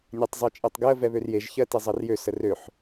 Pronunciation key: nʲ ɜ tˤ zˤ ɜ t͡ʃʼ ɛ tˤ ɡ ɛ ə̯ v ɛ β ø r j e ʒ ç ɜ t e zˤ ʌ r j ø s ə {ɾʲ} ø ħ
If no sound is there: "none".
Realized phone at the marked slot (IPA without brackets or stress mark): r